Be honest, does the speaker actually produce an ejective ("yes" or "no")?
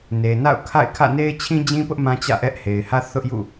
no